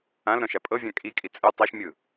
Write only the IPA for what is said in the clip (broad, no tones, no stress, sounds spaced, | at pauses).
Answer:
ã l ɾ ɔ̃ ʃ a pʼ ɤ vʲ ã kʼ i kʼ i t͡sʼ ɯ tˤ a ʃ mʲ ɯ